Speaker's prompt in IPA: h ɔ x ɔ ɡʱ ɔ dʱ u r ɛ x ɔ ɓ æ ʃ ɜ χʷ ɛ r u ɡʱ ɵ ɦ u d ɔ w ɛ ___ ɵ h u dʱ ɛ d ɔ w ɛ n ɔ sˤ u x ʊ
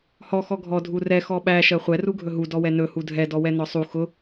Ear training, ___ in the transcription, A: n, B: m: A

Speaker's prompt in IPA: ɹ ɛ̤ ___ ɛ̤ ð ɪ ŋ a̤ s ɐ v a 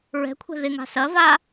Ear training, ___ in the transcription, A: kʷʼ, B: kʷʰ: B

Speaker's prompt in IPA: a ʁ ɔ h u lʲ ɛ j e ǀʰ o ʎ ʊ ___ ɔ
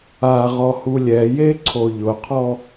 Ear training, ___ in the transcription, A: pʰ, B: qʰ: B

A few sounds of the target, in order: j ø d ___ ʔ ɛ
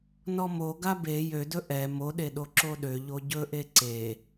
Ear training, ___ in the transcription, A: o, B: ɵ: B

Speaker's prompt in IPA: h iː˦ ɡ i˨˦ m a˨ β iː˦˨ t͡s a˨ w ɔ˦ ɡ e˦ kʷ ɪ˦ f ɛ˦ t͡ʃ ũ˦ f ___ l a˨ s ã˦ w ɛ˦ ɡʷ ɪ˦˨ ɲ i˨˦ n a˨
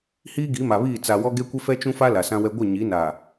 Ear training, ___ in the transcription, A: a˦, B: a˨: A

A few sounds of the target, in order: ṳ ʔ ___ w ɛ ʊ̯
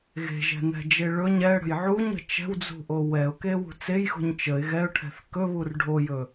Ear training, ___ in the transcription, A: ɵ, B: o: B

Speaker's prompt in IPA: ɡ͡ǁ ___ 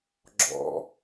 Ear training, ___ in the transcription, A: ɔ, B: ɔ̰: B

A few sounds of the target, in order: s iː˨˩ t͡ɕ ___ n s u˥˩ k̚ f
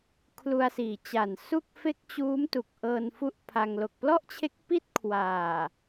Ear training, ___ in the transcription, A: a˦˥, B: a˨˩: B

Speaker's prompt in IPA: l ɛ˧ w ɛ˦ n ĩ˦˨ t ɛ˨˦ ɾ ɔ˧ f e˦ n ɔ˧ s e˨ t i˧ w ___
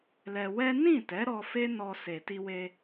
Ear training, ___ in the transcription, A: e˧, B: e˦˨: A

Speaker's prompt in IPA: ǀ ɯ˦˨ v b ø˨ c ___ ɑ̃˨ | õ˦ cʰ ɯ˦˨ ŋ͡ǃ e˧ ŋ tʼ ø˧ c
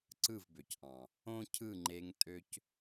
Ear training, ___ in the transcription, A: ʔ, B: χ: A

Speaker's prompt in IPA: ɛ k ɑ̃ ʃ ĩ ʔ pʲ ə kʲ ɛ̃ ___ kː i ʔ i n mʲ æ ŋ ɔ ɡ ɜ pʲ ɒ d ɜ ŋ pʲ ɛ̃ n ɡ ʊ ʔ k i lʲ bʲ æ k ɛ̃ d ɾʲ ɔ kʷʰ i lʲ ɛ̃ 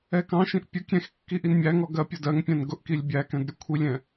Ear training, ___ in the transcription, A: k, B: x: B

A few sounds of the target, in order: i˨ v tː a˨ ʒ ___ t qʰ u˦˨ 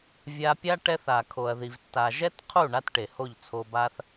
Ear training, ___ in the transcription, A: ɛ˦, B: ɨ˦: A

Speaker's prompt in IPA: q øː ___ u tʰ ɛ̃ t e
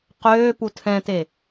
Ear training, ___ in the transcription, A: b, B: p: B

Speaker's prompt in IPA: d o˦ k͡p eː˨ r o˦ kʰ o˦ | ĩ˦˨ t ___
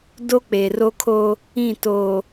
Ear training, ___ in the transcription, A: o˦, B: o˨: B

